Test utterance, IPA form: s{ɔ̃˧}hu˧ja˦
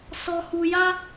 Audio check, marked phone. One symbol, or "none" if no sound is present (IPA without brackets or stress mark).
ɔ˧